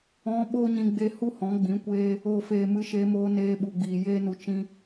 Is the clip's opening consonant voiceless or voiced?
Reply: voiced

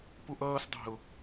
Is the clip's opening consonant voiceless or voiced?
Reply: voiceless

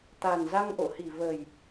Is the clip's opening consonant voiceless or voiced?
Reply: voiceless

